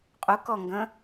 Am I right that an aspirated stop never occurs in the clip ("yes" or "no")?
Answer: yes